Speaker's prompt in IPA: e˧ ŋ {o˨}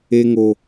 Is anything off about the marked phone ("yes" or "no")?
no